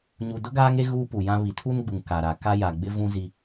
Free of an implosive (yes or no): yes